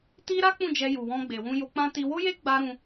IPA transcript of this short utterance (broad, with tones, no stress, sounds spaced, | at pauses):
t i˦ ɾ a˦ k͡p ũ˦˨ d͡ʒ ɛ˧ j u˨ w ɔ̃˧ ɡ͡b e˨ w ũ˧ j o˧ k͡p ã˦ t i˧ w o˦ j e˦ ɡ͡b a˧ ɾ ũ˧